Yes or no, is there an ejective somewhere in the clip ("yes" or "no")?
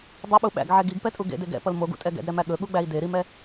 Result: yes